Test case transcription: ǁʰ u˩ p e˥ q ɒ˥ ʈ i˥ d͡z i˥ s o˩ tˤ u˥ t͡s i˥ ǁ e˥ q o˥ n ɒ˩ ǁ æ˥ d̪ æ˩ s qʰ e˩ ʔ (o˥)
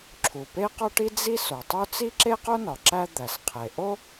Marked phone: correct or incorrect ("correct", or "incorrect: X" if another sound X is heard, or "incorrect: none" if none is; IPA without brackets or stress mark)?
correct